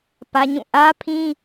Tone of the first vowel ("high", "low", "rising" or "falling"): high